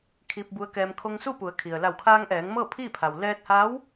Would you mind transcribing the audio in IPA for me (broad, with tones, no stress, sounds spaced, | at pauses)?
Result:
kʰ i˧ p̚ b u˧˥ ə̯ k ɛː˧ m kʰ o˧ ŋ s u˥˨ p u˩˧ ə̯ kʰ i˩ ə̯ l a˧˩ w kʰ aː˧ ŋ ʔ ɛː˩˧ ŋ m ɤː˥˨ pʰ iː˥˨ pʰ a˩ w l ɛː˧ t̚ h aː˧˥ w